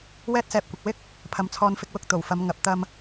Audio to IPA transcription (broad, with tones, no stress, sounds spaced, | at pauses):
w ɛː˥ t̚ s ɛː˧ p̚ kʷ ɪ˨ k̚ w ɪ˥ k̚ | pʰ ɐ˨˧ m t͡sʰ ɔː˧ n f ɪ˧ k̚ w ʊ˧ k̚ t̪ o˨˩ w f ɐ˨˧ m ŋ ɐ˨˥ p̚ t̪ ɐ˧ m